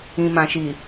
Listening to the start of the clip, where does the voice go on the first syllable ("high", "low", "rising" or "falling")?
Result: low